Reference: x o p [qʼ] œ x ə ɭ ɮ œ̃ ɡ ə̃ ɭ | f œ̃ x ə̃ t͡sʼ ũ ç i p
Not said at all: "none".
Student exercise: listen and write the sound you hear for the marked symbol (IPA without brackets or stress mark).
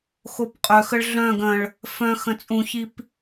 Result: qʼ